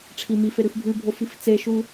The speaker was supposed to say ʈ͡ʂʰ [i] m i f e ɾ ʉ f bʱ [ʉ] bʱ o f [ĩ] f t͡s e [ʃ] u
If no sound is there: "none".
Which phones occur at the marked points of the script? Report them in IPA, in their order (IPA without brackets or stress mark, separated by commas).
i, ʉ, i, ʃ